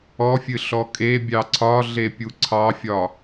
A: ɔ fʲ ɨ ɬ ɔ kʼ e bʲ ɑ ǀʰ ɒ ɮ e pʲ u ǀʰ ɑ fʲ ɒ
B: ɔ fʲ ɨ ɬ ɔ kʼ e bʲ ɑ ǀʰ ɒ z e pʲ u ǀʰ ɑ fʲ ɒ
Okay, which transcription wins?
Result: A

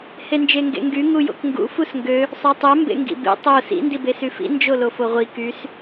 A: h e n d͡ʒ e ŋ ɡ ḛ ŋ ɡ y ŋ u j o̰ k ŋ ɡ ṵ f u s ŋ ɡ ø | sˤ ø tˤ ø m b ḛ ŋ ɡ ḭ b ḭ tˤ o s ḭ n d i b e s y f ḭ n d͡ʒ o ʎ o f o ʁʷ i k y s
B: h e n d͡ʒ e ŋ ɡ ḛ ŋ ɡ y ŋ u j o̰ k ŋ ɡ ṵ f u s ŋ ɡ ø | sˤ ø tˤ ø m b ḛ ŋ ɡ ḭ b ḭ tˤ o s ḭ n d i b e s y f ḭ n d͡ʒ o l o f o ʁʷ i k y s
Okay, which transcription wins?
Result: B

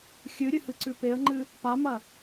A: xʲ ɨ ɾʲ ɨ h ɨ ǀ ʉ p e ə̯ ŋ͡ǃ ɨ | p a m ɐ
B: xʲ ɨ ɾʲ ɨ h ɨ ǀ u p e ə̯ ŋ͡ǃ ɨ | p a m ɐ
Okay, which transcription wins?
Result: A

